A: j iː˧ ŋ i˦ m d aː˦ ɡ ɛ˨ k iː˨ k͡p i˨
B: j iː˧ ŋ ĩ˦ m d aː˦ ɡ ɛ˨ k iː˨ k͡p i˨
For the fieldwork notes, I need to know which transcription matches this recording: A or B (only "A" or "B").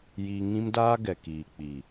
B